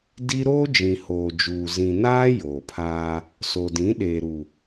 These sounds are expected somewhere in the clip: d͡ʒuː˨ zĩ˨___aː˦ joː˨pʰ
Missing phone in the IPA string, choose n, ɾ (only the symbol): n